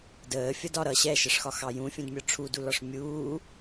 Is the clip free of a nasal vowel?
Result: no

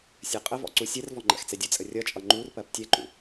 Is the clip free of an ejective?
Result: no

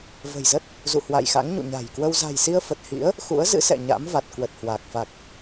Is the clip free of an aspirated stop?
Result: yes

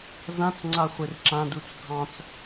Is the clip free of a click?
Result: no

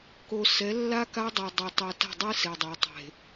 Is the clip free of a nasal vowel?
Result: yes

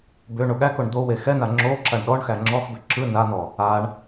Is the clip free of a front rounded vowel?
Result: no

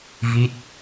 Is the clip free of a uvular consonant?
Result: yes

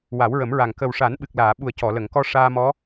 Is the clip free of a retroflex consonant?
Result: no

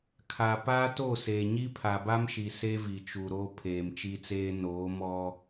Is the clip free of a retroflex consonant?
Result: yes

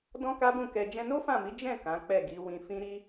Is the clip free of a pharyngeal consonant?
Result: yes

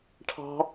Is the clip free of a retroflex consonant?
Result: no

